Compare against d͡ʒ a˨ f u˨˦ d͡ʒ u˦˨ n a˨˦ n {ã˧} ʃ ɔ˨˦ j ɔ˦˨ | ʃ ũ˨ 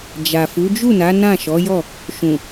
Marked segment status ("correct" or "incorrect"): incorrect